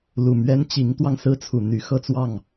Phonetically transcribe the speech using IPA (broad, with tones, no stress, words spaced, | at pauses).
lu˨˩mɥɛ˥nt͡ɕi˧˥ŋt̪wɑ˧ŋ sɹ̩˥t͡sʰu˨˩n̪y˧˥ xɤ˥˧t͡swɑ˥˩ŋ